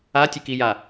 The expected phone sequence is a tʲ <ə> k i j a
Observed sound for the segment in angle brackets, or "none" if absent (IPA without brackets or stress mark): ə